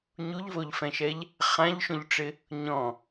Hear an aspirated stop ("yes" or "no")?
no